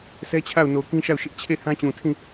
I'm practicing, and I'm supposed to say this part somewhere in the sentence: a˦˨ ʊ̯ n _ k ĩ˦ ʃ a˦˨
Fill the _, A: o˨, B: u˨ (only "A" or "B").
A